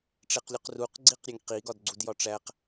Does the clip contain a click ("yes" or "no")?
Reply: yes